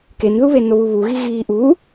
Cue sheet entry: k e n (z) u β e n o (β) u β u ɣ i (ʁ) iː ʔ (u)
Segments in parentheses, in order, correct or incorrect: incorrect, correct, incorrect, correct

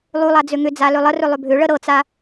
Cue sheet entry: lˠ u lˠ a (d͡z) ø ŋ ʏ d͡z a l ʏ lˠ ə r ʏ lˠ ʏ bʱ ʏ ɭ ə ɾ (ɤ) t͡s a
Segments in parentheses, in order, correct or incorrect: correct, correct

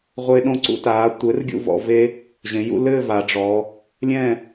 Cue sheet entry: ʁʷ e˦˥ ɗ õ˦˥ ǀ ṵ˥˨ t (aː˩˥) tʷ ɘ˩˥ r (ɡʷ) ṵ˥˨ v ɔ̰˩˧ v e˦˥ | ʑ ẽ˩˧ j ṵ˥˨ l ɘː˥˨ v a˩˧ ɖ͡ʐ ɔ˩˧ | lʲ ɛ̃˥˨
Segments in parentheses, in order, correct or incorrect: correct, incorrect

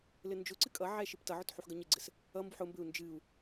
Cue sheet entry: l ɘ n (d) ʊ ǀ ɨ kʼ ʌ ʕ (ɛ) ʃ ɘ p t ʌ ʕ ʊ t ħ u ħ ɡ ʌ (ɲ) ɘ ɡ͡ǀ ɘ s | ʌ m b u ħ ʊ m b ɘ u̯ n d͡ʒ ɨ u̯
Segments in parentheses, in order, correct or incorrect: incorrect, correct, correct

